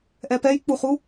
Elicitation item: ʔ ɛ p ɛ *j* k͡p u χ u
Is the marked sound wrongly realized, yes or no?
no